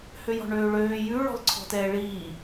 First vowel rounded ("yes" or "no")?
yes